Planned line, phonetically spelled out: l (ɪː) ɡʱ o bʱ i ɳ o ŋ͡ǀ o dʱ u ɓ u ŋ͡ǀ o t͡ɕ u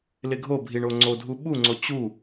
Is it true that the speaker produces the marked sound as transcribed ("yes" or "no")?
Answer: no